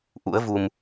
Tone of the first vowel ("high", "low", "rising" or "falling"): rising